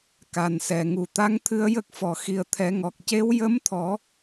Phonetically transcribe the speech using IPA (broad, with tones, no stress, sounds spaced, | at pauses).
k a˨˩ n s ɛ˨˩ ŋ u˨˩˨ t̪ a˧˥ ŋ t̪ʰ ɨ˧ ə̯ j ə˦˥ k̚ f ɔ˨˩˨ x i˨˩ ə̯ t̪ʰ ɛ˨˩˦ ŋ ɔ˨˩ k̚ c e˧˥ w j ə˧˥ m t̪ʰ ɔ˨˩˦